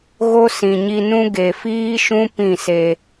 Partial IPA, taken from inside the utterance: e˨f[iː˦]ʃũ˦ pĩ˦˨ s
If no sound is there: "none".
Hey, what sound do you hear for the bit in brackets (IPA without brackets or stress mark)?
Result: iː˦